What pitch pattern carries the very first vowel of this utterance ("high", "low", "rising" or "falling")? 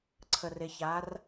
low